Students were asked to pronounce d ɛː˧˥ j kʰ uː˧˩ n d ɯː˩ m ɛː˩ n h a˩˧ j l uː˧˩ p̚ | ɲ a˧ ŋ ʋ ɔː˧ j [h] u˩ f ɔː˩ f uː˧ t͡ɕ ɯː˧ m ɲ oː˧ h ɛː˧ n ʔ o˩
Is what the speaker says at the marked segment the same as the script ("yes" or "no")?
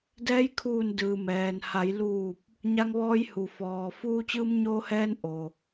yes